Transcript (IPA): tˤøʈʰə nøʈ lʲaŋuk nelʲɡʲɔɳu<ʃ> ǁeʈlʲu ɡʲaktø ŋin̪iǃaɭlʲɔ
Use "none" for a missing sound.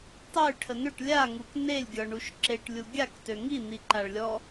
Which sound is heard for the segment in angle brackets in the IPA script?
ʃ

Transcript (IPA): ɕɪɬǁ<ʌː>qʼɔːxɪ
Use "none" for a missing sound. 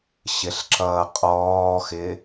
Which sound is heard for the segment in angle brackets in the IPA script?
ʌː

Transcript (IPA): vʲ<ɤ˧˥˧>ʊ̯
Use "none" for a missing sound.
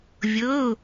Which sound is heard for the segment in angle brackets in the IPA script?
ɤ˧˥˧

